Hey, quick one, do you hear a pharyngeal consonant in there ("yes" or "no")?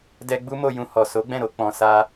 no